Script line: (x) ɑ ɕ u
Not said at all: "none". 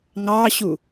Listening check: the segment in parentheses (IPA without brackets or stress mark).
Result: ŋ